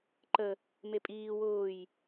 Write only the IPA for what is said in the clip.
ǃə | mepʼiː wʊːj

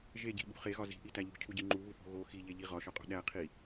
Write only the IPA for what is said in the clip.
ʒeɟi̤ɓṳ χeɣɒ zi̤ʔitæ ʎṳcʰuɟi ŋ͡ǃuβuθo̤ ɣo xiʎeʎi ʁɒʃɒqʼo̤ ɗæqʰi

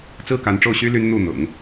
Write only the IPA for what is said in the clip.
t͡sɹ̩˥ka˧˥nʈ͡ʂo˥˩ʊ̯ɕy˥ ly˥nn̪u˥˩ n̪ʊ̰˨˩˦ŋ

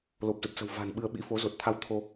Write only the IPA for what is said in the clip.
lo˨˩p̚zə˨˩p̚sə̤˨˩w va̤˨˩nɓɨ˧ə̯ ɓḭ˧˥fo˨˦ zo˨˩t̚t̪ʰa˧w t̪ʰo˧

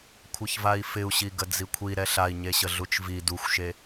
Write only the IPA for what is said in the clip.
kʷʰəçvai̯fɪu̯ɕi ɡəd͡zikʷʰi ɾɛɬai̯ɲeɕə ɮut͡ʃvi duxʷʃe

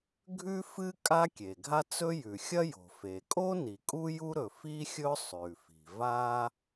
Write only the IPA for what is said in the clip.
ɡʱʉ˥fɨ˥ kʼa˥kʲe˩ɡʱa˥t͡sɵ˥ jʉ˩xʲɐ˥jo̤˩ fe˩ kʼo˥ ni˩kʼu˥ju˥ɾɵ˩ fi˥xʲɵ˥ sˤʉ˩fi̤˩ va˥

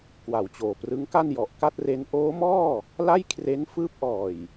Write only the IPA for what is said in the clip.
kwa˨˩wt͡ɕoː˨˩prɯ˦˥ŋka˥˩n jɔ˨˩ʔka˥˩t̚re˦˥n ʔoː˦˥mɔː˥˩ | la˥˩jkʰre˦˥n fɯː˦˥p̚ʔɔː˨˩j

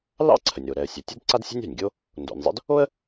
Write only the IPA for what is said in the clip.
lɑ̰˥ǀʰə˩nʲ ɾo˩ɾɛ˩ə̯sʲa˩ tʲu˥dǀa˥dsʲa̤˥nʲ a̤˩nʲɡʲo˥ | ndo̰˩nʲzˤə̰˥d | o˥ə̯

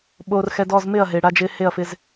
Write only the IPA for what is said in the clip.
ɓoː˧rxɛ˧dɔ˦˨z mɪ˦˨ɐ̯ɦe˨ ɽa˧d͡ʒɪː˧ he˦˨ɐ̯fɪ˧z

